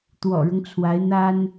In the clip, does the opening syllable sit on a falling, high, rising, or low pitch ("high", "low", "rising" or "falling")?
low